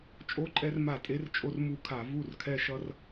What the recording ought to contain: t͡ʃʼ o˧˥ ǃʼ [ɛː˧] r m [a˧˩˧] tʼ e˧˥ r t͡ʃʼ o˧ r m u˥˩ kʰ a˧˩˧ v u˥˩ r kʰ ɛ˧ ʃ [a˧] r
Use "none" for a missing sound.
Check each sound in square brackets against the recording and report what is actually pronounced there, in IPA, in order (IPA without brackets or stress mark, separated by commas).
ɛ˧, a˧˩˧, ʌ˧